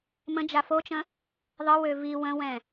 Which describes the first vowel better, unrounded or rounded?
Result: unrounded